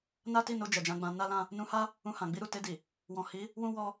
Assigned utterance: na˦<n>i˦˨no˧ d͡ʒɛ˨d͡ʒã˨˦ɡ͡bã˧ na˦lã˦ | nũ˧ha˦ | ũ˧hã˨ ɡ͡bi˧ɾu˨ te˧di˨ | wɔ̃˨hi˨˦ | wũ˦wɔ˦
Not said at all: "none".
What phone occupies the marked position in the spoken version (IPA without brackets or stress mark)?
t